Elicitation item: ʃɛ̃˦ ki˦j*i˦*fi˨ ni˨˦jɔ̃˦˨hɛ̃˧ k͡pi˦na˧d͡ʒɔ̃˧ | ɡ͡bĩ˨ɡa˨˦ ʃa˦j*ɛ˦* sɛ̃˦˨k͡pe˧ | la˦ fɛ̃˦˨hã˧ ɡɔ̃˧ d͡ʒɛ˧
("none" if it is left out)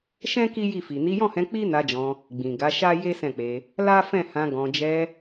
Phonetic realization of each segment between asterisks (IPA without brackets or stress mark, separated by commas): i˦˨, e˦